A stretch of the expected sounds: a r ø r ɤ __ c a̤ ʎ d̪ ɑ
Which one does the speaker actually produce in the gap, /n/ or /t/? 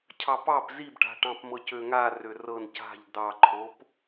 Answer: n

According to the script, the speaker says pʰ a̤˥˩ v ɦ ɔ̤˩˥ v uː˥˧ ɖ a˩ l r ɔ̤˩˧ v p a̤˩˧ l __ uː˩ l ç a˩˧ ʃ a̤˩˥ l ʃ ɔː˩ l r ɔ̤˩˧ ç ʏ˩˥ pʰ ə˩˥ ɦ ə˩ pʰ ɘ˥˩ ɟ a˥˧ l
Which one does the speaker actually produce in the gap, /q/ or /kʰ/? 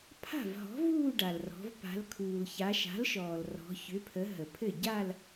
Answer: kʰ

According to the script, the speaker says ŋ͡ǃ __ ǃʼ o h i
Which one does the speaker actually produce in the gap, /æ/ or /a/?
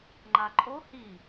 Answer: a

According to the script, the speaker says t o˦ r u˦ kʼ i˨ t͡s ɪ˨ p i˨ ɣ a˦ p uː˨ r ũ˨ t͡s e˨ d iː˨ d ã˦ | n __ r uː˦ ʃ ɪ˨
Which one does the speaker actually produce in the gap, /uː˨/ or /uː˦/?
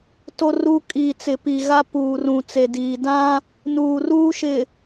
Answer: uː˨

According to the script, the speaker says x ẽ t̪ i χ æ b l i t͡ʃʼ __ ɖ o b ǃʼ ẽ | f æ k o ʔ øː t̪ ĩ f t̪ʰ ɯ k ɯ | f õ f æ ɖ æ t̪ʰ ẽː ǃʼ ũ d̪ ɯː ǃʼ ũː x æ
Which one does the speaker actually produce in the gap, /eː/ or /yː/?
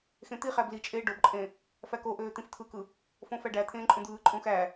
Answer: eː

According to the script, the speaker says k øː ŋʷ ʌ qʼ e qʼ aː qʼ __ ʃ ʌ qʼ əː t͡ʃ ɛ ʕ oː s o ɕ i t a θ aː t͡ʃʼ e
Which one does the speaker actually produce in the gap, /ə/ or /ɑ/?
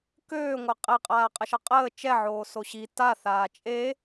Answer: ə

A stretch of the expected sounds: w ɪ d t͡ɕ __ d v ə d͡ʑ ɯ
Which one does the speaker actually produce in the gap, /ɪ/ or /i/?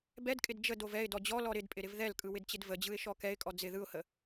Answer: ɪ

